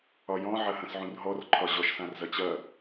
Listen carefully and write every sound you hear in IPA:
ɒjɔ̃ ʕɐhɐ̃sʕũrɦɔr ǃʰɒʑɔʃ sãrzɐt͡ɕɐ

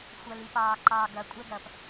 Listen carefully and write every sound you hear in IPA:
xʷɐlipɑː ǃɑːɡɐ kʷʼɛɡɐːp

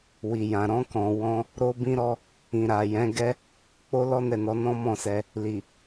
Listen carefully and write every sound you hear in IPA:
wi˨jã˨ ɾɔ̃˧kɔ̃˨ wɔ̃˧ | ɾo˧bĩ˧ɾɔ˧ | ĩ˨ɾa˨jɛ̃˨˦ ɡɛ˦ | k͡po˦lɔ˦nɛ˦˨nɔ˨˦ nɔ̃˦mɔ̃˦˨sɛ˧ | li˨

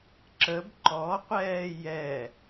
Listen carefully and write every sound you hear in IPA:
ǁəb ǃɔqʷɛː jɛ

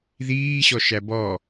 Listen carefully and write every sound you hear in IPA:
ðiː ɕɔʃæbɔ

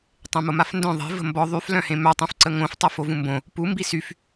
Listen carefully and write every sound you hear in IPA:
tˤẽmomafndœ̃ ðˤe̤ və̤mbɔ ðˤyf lœ̃hẽmœ tˤũfǀəŋõf tˤɛfovũmbõ | pu mbisyf

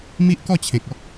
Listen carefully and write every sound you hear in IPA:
mi˦ʔkɔ˥˧t͡ɕʰẽ˨k̚ɔ˦k̚

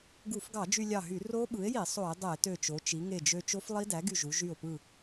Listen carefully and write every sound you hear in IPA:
ɡu˧˩˧fɡɑ˧˩˧ d͡ʒy˧lʲɑ˧˩ɦy˧˩˧ ro˦˥ɓɯ˩˥e̯ji˧˩˧ sˤo˧˩˧e̯dˤe˧˩˧tø˧˩t͡ʃo˩˧ t͡ʃi˩˧ŋe˧˩d͡ʒø˧ t͡ʃo˦˥flˠi˦˥ dæ˩˥ɡy˧˩ʒu˩˧ ʒy˧˩o̯pɯ˧˩

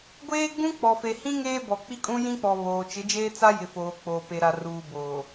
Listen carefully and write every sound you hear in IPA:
ɡʷeː˦ ɡ͡bũ˦k͡pɔ˨fe˨hĩ˦ ŋeː˦bɔ˨k͡pi˦kʼũ˦ jĩ˦k͡pɔ˨ βoː˨ t͡ʃɪ˨˦d͡ʒeː˦t͡sa˦jɪ˨ foː˨k͡poː˨ pe˨ɾa˨ruː˨ boː˨

